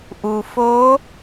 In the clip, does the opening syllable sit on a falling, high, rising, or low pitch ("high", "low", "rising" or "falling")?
low